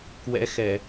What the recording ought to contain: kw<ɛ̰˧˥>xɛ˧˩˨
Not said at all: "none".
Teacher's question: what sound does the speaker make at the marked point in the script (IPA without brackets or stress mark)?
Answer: ɛ̰˧˥